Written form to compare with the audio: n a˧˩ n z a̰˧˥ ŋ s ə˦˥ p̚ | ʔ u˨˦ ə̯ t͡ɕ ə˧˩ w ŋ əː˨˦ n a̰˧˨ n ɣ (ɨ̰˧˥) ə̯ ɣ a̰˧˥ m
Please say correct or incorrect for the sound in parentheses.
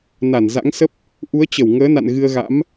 incorrect: ɨ˧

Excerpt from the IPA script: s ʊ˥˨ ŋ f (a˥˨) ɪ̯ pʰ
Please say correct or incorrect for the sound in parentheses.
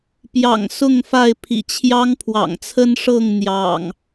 correct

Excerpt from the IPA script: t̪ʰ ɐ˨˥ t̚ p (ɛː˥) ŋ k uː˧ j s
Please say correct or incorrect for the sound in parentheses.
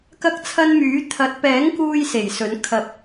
incorrect: ɛː˨˥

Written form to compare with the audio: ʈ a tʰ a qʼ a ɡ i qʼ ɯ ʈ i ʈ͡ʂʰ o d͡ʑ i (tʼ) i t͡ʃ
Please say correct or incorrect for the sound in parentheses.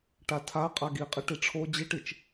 incorrect: ʈ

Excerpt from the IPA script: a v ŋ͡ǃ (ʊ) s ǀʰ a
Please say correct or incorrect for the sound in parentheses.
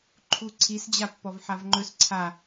incorrect: ɵ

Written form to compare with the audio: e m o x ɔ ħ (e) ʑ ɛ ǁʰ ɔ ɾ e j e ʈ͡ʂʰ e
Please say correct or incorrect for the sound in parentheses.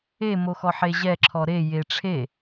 correct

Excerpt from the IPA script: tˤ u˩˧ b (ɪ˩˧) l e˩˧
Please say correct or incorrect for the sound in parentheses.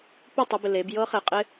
incorrect: ɪ˩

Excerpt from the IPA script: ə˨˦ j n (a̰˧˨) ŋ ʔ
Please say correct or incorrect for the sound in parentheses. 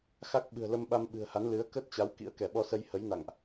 correct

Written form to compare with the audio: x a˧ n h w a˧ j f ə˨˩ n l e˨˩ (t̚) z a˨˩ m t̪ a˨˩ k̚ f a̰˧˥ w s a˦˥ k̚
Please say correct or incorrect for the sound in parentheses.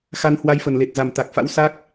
correct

